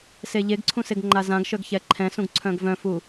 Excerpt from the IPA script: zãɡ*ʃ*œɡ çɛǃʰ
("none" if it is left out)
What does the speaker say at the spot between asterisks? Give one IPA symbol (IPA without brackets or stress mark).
ʃ